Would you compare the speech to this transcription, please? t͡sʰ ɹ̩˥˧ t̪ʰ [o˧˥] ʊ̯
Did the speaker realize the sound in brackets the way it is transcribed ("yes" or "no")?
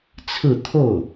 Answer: no